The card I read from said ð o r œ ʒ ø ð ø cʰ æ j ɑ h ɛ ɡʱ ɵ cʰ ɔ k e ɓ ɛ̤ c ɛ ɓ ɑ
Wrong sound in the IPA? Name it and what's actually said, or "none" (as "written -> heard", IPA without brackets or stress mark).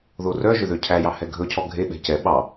k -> ɡʱ